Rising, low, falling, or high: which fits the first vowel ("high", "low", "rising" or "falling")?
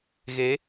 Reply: rising